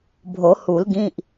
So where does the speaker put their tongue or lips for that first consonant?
lips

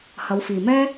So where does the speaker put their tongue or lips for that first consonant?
throat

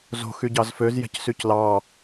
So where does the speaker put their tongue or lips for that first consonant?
tongue tip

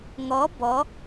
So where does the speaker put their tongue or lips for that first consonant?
velum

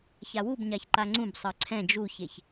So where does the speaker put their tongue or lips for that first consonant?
palate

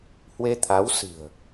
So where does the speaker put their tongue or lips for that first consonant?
throat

